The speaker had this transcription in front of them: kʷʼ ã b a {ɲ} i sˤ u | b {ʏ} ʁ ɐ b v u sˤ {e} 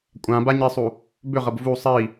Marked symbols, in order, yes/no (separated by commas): yes, yes, no